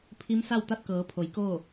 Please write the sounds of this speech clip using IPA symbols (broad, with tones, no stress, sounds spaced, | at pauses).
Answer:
pʰ i˧˥ m s a˥˨ w t̪ a˥˨ t̚ k ɤː˩˧ pʰ o˩˧ j k oː˥˨